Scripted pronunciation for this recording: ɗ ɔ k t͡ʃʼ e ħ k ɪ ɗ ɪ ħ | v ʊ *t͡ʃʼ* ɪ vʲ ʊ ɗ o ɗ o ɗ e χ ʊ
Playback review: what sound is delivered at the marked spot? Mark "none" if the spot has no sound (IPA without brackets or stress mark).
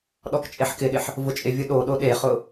t͡ʃʼ